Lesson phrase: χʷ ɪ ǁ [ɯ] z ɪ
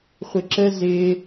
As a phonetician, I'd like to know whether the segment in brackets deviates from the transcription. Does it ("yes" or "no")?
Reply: yes